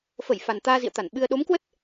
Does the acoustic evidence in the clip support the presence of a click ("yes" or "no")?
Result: no